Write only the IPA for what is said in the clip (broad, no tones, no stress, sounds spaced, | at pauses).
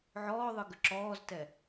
ʕ ɔː ðˤ ɯ ɡ ʏ ǁ ɔː z t ɛ